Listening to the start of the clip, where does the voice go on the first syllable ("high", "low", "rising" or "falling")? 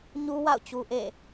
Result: high